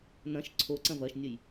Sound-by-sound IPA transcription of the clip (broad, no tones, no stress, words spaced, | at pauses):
nɐ̃ʃ ǀʰo ǀɐ̃vɐʃnʲəj